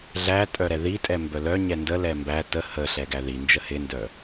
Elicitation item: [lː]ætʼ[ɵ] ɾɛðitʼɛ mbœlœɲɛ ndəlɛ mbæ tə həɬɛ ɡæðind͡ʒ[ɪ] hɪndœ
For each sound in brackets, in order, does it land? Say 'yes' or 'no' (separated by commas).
no, no, no